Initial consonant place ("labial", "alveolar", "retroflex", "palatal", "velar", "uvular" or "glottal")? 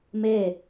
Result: labial